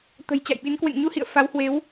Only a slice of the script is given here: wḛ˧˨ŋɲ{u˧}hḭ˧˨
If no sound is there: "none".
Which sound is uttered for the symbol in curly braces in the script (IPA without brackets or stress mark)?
u˧